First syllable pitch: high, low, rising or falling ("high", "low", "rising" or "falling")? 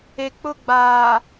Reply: low